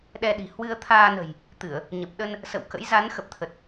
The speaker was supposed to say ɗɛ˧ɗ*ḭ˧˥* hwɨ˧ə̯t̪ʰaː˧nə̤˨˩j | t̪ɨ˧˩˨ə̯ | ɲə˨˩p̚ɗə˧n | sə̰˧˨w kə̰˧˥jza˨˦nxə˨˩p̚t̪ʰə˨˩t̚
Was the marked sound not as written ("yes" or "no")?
yes